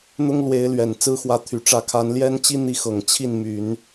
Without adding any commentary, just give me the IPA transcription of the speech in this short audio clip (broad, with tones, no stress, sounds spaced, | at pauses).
n̪ ʊ˥ ŋ l w e˧˥ ɪ̯ l ɥ ɛ˨˩ n t͡s ɹ̩˥ x w ä˧˥ t̪ʰ y˨˩ ʈ͡ʂ ä˧˥ kʰ a˧˥ n l j ɛ˥ n t͡ɕ i˥ n̪ i˧˥ x ɤ˨˩ ŋ t͡ɕʰ i˥˩ n m y˨˩˦ n